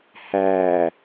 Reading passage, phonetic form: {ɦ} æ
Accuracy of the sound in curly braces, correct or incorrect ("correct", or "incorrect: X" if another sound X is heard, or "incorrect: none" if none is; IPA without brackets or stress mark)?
incorrect: h